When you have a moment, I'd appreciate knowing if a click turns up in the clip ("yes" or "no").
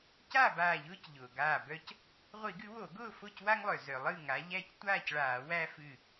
no